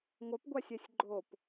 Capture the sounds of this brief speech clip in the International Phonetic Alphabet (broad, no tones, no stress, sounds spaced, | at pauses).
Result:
ŋʷ ə p ɡʷ a sʲ ɛ sʲ ɡ͡ǃ o p